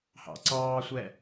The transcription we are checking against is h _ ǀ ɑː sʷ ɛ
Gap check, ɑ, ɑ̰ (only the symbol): ɑ̰